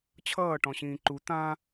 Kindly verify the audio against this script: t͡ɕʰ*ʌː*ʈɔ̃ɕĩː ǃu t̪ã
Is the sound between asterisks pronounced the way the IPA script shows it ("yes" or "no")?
yes